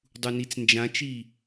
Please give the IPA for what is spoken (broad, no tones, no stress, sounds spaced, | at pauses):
dˤ u n i t͡s n d͡ʒ ã t͡ʃ i